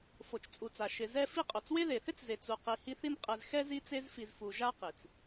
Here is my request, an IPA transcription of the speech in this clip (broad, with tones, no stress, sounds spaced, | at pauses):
f o˩ t͡ʃ t͡sʼ u˩ t͡s a˩ ʃ ɪ˨ z ɛ˦ f i˦ qʼ o˩ t͡s w e˦ ð e˩ θ ɪ˥ t͡s z e˨ t͡s u˨ q i˨ h i˥ θ i˥ n qʼ ɛ˨ z x ɛ˥ z i˦ t͡s e˦ z f i˨ z f u˨ ʒ a˥ q i˩ t͡s